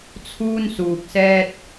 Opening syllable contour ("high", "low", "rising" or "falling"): high